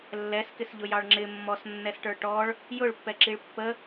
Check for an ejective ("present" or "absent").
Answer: absent